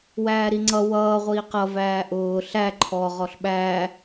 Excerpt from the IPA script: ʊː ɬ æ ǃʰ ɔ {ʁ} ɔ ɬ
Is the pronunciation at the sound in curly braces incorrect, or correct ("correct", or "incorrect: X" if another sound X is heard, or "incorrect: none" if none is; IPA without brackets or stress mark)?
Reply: correct